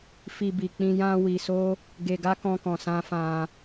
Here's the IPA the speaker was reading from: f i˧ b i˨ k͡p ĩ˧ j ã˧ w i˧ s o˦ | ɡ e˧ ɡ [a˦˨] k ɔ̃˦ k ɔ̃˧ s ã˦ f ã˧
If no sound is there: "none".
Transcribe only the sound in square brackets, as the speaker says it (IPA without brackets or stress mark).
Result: a˦